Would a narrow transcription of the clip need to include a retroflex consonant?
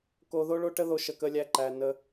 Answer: yes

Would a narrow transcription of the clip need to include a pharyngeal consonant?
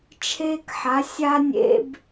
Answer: yes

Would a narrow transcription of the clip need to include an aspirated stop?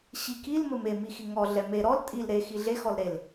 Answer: no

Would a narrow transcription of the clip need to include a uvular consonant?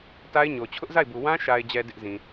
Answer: no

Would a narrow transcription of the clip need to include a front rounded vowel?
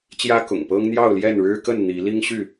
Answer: yes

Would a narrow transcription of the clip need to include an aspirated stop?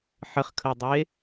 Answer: yes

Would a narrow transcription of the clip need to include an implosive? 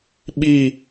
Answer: yes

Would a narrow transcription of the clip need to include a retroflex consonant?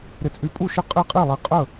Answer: no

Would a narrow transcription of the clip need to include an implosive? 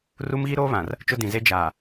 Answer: no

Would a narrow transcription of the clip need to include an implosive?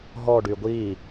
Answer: no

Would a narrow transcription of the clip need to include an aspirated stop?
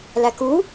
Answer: no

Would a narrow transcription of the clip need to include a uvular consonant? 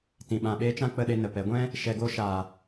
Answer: no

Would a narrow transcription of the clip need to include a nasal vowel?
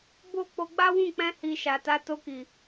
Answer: yes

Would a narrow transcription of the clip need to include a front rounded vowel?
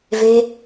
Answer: no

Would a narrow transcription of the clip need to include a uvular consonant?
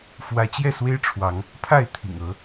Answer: no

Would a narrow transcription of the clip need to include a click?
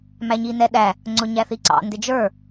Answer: yes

